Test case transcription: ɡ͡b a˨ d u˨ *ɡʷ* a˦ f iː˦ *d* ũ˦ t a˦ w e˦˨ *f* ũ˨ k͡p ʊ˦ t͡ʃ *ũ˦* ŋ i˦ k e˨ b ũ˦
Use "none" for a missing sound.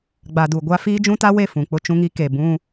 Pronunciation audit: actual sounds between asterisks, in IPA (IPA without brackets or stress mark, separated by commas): ɡʷ, d͡ʒ, f, ũ˦